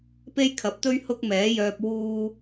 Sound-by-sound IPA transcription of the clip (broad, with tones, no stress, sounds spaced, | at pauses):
p e˥ j kʰ ɐ˨˥ p̚ t̪ ɵ˥ ɥ h ʊ˥ k̚ m ɛː˨˥ j œː˧ p̚ w uː˧